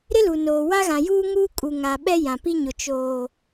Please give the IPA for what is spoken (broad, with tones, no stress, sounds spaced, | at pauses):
ɾ ɪ˦ l u˨ n oː˨ w a˦ ɣ ã˨ j uː˦ ŋ uː˦ kʼ u˨ ŋ a˨ ɓ ɛ˦ j ã˨ p i˦ ɲ ʊ˨ t͡ʃ oː˨